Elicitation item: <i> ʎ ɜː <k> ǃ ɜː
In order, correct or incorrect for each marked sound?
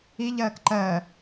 correct, correct

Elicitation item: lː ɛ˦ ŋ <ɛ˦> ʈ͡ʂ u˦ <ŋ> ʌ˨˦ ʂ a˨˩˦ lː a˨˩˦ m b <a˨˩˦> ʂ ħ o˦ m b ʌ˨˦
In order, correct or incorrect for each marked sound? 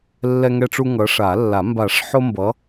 correct, correct, correct

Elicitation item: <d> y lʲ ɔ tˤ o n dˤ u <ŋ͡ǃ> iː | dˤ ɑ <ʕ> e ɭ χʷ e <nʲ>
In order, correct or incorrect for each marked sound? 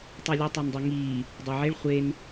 incorrect: tˤ, incorrect: ŋ, correct, incorrect: n

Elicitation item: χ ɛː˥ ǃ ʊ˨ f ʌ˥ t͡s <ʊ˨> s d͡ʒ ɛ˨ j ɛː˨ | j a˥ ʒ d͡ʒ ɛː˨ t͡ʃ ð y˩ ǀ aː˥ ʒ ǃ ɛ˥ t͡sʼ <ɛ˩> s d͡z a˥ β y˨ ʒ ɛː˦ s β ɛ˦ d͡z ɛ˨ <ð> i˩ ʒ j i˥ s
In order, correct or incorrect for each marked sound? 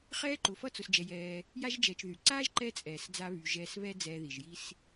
correct, incorrect: ɛː˩, correct

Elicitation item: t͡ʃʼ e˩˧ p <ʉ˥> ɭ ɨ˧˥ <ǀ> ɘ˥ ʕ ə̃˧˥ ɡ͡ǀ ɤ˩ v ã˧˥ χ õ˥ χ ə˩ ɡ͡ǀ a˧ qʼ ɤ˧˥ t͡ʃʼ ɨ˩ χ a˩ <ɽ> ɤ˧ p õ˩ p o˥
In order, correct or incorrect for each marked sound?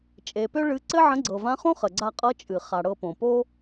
incorrect: ø˥, correct, correct

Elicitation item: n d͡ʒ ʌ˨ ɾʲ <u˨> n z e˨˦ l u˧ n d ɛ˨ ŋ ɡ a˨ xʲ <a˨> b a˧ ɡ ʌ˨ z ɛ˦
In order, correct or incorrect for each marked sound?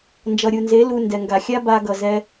correct, incorrect: a˦

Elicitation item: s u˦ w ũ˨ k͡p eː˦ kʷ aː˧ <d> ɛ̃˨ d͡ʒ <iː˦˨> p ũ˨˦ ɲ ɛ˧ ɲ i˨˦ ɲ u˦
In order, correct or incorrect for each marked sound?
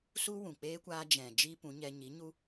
incorrect: d͡ʒ, incorrect: iː˦

